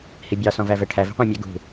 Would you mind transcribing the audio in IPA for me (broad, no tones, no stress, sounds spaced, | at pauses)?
h i bʲ ɑ s ɔ̃ v æ v ɛ ʈʰ æ v i̤ qʷ ĩ mʲ ɛ ɡ ṳ